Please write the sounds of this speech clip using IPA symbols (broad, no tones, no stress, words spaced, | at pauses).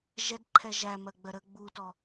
ʒɛdǃʰɛ ʒæmɜɡ͡bɜ ɾə ɡ͡butɔ